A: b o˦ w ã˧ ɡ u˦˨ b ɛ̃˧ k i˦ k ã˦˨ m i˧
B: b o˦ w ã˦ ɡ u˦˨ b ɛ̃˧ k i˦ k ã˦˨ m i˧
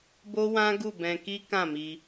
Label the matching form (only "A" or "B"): B